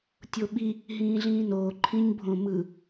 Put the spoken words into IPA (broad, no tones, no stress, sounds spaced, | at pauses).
tʲ o ɓ i | ɦ ĩː ɮ ĩː n oː ǃʰ ĩ ɲ bʱ õ m ɯ